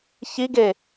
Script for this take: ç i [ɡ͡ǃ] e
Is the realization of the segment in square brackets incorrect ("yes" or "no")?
yes